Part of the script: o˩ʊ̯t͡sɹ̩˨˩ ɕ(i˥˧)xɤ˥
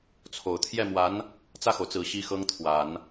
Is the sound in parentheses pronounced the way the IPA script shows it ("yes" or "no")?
no